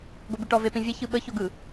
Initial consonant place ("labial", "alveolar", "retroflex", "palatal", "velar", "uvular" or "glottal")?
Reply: velar